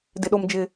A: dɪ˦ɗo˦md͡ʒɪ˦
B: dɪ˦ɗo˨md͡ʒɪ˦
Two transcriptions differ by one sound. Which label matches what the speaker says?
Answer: A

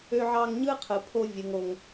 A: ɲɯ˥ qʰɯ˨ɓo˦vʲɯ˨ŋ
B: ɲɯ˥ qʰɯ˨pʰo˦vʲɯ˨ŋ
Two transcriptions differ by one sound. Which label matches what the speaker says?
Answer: B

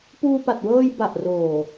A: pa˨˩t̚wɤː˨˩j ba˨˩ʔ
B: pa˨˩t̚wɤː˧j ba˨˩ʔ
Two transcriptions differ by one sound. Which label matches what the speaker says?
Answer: B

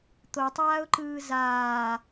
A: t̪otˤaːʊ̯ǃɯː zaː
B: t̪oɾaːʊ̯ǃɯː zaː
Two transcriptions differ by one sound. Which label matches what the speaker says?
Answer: A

